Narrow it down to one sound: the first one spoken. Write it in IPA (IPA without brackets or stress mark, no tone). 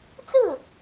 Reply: t͡s